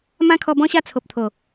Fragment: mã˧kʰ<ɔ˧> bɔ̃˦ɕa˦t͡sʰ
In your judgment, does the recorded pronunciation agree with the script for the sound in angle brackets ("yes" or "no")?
yes